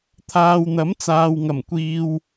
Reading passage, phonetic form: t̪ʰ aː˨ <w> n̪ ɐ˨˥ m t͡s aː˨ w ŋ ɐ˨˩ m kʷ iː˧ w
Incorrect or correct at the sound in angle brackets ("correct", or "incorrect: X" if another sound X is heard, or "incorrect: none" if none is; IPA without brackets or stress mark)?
correct